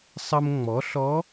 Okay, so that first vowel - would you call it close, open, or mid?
mid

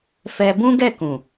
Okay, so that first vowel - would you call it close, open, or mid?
mid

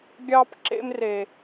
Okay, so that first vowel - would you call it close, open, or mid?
open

